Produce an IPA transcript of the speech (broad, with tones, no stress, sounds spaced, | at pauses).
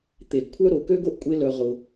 t̪ e˨ ɡ kʷʰ œ˦ ɾ o˨ k ø˦ ɡ o˦ ʔ kʷʼ e˦ l œ˧ ʁ ʊ˧